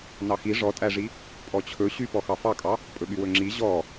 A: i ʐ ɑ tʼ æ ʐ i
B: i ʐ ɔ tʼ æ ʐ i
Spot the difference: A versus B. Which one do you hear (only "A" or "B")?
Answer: B